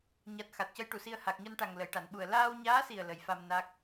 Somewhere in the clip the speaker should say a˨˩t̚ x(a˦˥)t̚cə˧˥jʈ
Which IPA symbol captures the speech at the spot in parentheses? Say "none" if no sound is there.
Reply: a˨˩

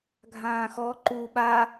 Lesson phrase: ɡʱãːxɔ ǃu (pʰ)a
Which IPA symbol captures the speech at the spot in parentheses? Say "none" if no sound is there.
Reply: ɓ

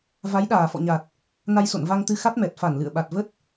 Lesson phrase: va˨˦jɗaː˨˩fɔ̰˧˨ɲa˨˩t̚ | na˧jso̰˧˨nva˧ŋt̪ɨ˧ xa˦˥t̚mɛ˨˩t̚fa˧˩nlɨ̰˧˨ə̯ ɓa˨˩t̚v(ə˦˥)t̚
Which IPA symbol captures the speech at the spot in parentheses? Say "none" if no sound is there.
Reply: ə˦˥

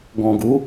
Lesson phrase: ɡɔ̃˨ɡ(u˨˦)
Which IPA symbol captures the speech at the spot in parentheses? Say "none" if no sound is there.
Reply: u˨˦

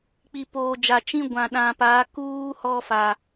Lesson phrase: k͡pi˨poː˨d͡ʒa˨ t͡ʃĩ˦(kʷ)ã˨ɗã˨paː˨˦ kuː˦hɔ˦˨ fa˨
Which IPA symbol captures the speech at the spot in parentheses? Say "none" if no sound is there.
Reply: ɡʷ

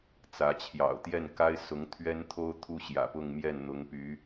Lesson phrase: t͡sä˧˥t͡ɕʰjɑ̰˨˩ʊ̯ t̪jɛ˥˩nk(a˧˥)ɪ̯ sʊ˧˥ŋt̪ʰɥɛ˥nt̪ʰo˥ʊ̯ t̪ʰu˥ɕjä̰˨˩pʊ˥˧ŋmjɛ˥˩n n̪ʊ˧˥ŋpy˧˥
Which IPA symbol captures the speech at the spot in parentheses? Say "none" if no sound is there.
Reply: a˥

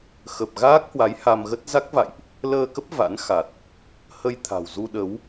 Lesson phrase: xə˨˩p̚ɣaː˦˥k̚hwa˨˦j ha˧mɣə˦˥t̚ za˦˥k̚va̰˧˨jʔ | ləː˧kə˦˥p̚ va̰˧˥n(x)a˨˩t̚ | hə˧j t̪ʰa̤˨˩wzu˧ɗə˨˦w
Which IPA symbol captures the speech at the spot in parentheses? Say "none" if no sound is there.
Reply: x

